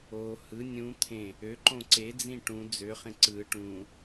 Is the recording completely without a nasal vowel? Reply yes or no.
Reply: no